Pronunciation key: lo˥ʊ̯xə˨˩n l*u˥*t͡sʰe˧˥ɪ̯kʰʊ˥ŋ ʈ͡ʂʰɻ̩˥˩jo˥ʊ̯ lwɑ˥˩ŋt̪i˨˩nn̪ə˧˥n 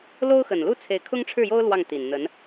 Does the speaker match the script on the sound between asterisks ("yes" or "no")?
yes